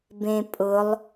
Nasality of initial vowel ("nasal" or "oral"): nasal